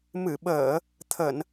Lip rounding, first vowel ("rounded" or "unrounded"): unrounded